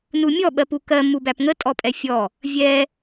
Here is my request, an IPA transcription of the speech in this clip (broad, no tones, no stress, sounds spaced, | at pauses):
n u mʲ ɔ ɓ ɜ p u k ɜ m u b æ p ŋ ə tʼ ɔ pʼ ɛ fʲ ɔ | vʲ ɛ